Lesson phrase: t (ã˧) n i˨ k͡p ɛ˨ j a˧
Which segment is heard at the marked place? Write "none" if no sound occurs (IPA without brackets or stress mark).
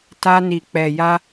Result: a˧